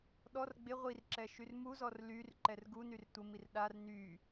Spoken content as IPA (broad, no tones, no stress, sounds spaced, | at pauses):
ɗ ɔ r ɡ͡b ɪ ʁʷ i r ǁ ɛ ʃ y r m u z ɔ r l y r ǃ ɛ r ɡ u n y r tʷ ə m i r ɗ a r n y